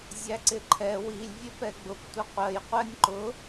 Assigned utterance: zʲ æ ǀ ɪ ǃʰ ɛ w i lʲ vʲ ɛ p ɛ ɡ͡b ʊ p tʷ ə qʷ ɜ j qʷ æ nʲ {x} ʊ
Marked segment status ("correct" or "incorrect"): incorrect